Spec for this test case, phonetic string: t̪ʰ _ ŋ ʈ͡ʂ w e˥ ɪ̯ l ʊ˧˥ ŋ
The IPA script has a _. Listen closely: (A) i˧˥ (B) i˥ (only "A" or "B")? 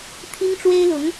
B